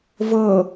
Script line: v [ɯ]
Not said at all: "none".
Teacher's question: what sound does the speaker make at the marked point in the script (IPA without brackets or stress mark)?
ɤ